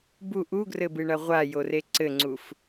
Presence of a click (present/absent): present